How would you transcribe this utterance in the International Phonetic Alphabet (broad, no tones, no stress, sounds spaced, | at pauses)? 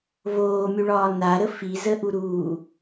v oː mʲ u ɭ ɒː n a ɾ ə f i z ə ʔ u ɾ uː